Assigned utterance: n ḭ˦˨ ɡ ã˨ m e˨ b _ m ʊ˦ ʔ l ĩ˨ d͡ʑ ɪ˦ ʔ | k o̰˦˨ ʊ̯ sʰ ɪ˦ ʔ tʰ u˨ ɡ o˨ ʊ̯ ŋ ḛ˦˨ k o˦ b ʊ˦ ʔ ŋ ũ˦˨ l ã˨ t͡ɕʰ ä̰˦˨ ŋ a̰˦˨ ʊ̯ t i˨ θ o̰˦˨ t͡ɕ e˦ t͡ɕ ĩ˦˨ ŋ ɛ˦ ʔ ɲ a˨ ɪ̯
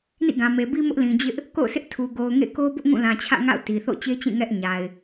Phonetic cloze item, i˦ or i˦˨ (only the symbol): i˦